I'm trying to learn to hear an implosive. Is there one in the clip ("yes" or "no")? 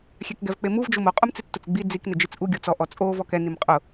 no